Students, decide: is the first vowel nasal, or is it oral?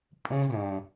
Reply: nasal